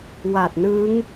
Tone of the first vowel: low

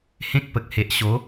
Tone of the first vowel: high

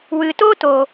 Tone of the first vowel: low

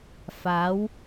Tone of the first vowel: rising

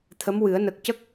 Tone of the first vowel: rising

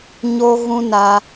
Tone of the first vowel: high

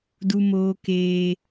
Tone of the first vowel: high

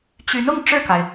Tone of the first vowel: rising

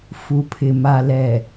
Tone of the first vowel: low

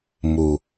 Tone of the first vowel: low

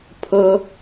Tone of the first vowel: high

